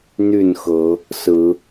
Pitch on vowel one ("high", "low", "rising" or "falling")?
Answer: falling